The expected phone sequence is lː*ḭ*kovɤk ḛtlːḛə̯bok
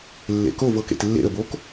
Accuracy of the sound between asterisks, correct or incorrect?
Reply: incorrect